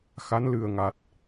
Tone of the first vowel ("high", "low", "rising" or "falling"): rising